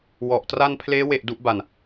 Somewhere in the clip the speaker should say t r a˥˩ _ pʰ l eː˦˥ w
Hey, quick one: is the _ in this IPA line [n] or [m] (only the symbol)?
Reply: n